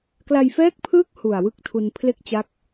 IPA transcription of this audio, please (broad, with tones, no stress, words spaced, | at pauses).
kla˧j fɛː˦˥k̚pʰɯː˦˥k̚ hu˨˩a̯wɯ˥˩k̚tʰu˧n pʰle˥˩k̚t͡ɕa˦˥k̚